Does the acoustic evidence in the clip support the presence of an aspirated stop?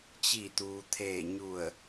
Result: yes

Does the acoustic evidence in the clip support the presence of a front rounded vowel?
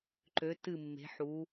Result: yes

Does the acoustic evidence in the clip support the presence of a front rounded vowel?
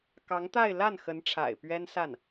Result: no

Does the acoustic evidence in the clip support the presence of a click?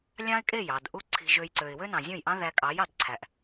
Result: yes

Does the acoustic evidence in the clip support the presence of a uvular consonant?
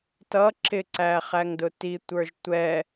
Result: yes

